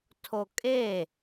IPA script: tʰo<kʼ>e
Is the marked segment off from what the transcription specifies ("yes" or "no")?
no